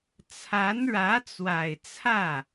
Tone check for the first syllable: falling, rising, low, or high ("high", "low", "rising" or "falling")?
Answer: rising